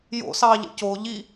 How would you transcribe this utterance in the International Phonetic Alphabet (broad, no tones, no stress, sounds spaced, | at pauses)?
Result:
j o̰ s ɑ ʎ ə̰ c o ʎ i